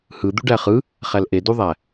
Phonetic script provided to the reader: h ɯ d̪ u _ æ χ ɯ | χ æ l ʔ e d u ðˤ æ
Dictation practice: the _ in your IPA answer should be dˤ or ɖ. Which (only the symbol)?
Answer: ɖ